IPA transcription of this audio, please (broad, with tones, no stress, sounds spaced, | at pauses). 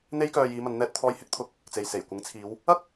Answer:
n̪ e˥ j k œː˧ j iː˨˧ m ɐ˨˧ n n̪ ɛː˧ t̚ t̪ʰ ɔː˧ j h ɪ˥ k̚ t̪ʰ ʊ˨ k̚ | t͡s e˨ j s e˨˩ j kʷ ɪ˨˥ ŋ t͡sʰ iː˨˧ w | ɐ˥ k̚